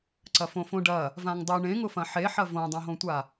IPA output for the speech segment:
ǀ ɐ f õ f õ ɖ ɐ | v ã ŋ dˤ ʊ ɳ ẽ ŋ ʊ f ɐ̃ ħ e ħ ɐ v õ dˤ õ ɦ õ tʷ a

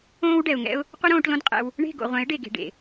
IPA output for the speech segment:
õː˦ w ɖ ɛ˨ ʊ̯ ŋ ɛ̰˦ ʊ̯ | qʷ ɘ˦ ɾ õː˧ ʈ l õ˦ d qʼ ɛ̰˧ w | ɳ e̤˦˨ ɡ o̰˨ ʁʷ ɛ̃˨˦ ɪ̯ ɖ e˨ ɡ e̤˨ ɖ ḛ˨

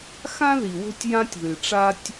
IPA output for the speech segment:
x ã˥ ð i˩ w o̤˥ tʲ j ã˥ tʲ ð ɨ˩ ʈ͡ʂ a˥ tʲ

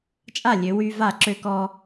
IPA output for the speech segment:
t͡ʃʼ a˥˩ lʲ ø˨˦ w y˦ v a˥˩ ǁ ø˦ k ɔ˦

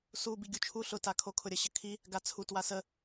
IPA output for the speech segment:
s u b i ɡʲ u t͡ʃʰ u ɬ ʊ t a kʰ o kʰ ʊ ɾʲ ə ɕ ə kʰ i | ɡ a t͡sʰ u t w a s ə

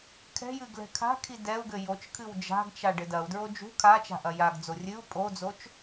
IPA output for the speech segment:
kʰ ɛ̤ j ɨ ɡ l ɛ̤ kʰ a̤ kʰ i d ɛ u̯ ɡ ɘ j o t͡ʃ kʰ ɨ w d͡ʒ a̤ ɡ t͡ʃ a ɖ ɘ d ɐ u̯ d ɹ o d͡ʒ ṳ kʰ a t͡ʃ a̤ ʔ ɐ j a ɡ d͡z o rʲ ɨ u̯ pʼ o d͡z o t͡ʃ

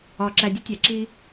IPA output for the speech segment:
ɒ˨ ǁ æ˨ dʲ e˦ tʲ æ˨ ǁ i˧

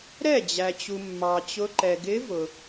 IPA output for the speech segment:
ɾ ɛ˥˩ d͡ʑ æ˨ t͡ɕ u˨ mː ɑ˨ t͡ɕ ʊ˧˥ ǃ ɛ˨ ɡ ɪ˧˥ v ʊ˨

